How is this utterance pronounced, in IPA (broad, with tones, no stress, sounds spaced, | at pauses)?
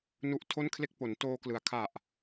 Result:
n u˦˥ ʔ tʰ o˥˩ n kʰ l e˥˩ k̚ p o˩˦ n t oː˧ k l ɯ˩˦ a̯ kʰ a˨˩ ʔ